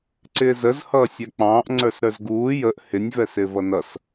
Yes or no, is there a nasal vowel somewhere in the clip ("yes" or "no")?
yes